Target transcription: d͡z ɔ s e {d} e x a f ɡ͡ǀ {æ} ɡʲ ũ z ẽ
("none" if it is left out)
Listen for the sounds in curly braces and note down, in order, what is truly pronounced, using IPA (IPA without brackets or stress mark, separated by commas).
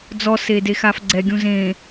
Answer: d, ɛ